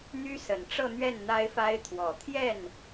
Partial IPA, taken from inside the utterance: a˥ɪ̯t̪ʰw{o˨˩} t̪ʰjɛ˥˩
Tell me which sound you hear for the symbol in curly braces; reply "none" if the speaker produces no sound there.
ɔ˨˩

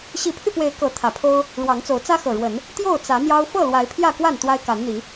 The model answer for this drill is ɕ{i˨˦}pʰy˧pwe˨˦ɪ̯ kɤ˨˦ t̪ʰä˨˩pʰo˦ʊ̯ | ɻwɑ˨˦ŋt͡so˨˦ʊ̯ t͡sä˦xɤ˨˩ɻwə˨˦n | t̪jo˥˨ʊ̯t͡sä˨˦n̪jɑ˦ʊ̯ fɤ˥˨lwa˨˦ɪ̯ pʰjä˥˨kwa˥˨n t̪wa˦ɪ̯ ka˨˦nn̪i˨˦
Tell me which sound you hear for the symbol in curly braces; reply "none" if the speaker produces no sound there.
i˨˦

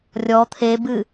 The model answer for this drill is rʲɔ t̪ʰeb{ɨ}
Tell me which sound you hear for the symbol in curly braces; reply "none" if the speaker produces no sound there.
ɨ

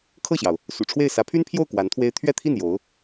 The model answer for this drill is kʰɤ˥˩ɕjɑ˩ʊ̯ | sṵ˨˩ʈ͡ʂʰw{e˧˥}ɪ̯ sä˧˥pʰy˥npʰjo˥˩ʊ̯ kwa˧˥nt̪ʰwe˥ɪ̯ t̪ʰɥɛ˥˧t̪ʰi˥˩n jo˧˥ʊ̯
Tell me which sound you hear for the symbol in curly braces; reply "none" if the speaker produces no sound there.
e˥˩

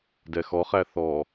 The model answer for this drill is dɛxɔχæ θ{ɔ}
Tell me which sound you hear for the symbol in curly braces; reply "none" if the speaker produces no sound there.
ɔ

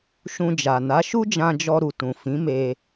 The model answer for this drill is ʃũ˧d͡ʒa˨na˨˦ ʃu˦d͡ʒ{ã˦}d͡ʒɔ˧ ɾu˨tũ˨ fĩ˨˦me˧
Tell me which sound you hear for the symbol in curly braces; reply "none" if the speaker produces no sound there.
ã˧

